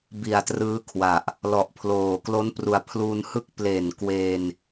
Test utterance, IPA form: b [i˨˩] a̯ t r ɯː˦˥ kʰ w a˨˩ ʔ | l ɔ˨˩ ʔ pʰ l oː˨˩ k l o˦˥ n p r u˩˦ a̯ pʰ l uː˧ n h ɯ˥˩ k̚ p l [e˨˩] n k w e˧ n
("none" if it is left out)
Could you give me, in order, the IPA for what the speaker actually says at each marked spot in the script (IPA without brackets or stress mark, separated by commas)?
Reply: i˨˩, e˨˩